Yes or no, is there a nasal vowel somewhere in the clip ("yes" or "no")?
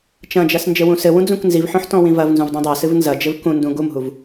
yes